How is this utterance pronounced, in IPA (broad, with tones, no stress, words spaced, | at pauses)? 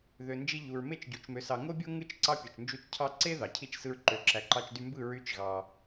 ðø˨nd͡ʒi˧ ʎu˨ɹme˦˨t͡ʃɟu˨t͡ʃmø˨s ɑ˨ŋo˦bʲo˦ ŋɯ˦˨t͡ʃ ǀɑ˦pʲo˨t͡ʃnd͡ʒu˦˨t͡ʃ cʰɑ˧ǀe˦ ðɑ˨ cʰi˦˨t͡ʃsɯ˧ɹǃø˨ ǁæ˨ǃɑ˧t͡ʃ dy˧mbɯ˦˨ ɹy˦t͡ʃɣɑ˧